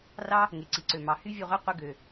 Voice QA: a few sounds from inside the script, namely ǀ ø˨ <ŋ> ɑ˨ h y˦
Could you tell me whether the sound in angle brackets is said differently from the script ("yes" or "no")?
yes